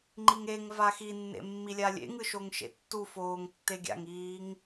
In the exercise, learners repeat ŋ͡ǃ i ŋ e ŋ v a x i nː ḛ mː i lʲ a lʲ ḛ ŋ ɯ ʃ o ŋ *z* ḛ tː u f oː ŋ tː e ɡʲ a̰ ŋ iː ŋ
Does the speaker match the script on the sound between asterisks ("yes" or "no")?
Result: no